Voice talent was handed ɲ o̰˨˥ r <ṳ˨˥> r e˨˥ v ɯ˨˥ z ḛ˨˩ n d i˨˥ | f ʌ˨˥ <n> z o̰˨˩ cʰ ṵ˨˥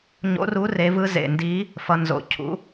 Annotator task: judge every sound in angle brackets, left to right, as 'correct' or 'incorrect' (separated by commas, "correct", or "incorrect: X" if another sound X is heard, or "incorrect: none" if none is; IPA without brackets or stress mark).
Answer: incorrect: u˨˥, correct